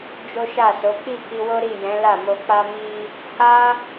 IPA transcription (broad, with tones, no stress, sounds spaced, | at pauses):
d͡ʒ o˦ ʃ a˦˨ s o˨˦ k͡p i˦˨ k i˧ w o˦ ɾ i˦˨ j ɛ̃˨˦ l a˦˨ m o˧ k͡p a˦ m i˦ | h a˦